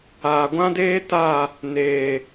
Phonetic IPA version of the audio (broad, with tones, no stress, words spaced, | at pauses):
aː˨ɡʷã˦deː˦ ta˦˨ | neː˨